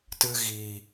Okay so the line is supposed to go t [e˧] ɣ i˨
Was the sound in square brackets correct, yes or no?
no